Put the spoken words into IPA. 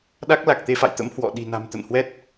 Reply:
ɗ a˦˥ k̚ l a˨˩ k̚ t̪ e˧ f a̰˧˨ j t̪ ə̰˧˥ m h w ɔ̰˧˨ ɗ i̤˨˩ n a̤˨˩ m t̪ ə̰˧˨ n h w ɛ˦˥ t̚

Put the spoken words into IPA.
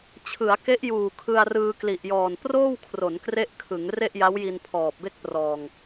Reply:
t͡ɕʰ ɯ˩˦ a̯ k e˦˥ ʔ j uː˨˩ kʰ ɯ˧ a̯ r ɯː˧ k l i˨˩ ʔ j ɔː˨˩ n p r oː˥˩ w kʰ r o˩˦ n k r e˥˩ ʔ kʰ ɯ˩˦ ŋ r e˥˩ ʔ j a˦˥ w j i˧ n pʰ ɔː˨˩ p̚ b e˥˩ k̚ p r ɔː˨˩ ŋ

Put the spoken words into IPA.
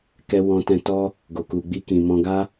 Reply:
k ɛ˧ w ɔ̃˧ t ɛ̃˧ t ɔ˦ | ɡ o˨ k u˨ ɡ͡b i˧ k ĩ˨ m ɔ̃˧ ɡ a˦

